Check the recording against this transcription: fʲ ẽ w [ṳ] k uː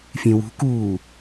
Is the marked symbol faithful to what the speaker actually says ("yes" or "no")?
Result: yes